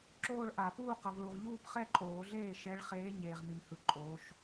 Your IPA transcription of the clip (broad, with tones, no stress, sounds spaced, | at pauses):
ǁ oː˥˧ ɭ ʔ a˨˩˦ p uː˥˧ q ʌ˨ v ɭ u˨ ʁ ʎ uː˥˧ p χ ɛ˥˧ ǃʼ oː˨˩˦ ɮ eː˥˩ ʃ ɛ˨˦ ɭ χ eː˨˦ ɲ eː˨ ʁ m i˨ m h ɯ˨ ǃʼ oː˨˦ ʃ